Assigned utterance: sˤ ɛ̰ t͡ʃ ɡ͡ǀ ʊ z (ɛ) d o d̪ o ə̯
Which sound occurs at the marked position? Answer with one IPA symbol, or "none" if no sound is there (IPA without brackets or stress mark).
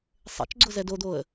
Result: ɛ